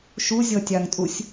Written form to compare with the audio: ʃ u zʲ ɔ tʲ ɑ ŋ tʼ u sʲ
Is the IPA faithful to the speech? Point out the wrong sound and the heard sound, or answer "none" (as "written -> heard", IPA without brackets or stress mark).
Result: none